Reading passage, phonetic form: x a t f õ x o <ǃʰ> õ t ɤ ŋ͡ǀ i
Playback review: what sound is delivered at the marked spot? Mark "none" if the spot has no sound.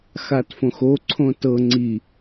ǀʰ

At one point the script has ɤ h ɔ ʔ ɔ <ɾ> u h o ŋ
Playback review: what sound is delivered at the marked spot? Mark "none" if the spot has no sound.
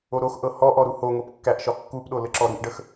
ɾ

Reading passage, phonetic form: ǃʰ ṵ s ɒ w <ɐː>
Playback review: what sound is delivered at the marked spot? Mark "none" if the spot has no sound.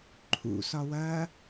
ɐː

